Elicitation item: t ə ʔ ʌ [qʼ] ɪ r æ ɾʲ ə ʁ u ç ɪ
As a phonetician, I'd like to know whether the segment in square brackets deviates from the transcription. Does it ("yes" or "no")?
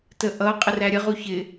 no